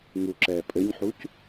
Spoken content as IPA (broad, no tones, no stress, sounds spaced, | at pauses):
ŋ u ǁ ɛː pʼ ɘ ɲ ħ u c